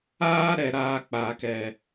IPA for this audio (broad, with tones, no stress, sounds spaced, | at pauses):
aː˦ ɾ ɛ˨ ɾ aː˧ k͡p aː˨ k ɛ˨